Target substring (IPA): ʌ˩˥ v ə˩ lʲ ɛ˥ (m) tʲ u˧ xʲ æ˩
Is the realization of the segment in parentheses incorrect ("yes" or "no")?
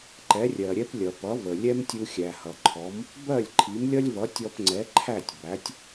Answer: no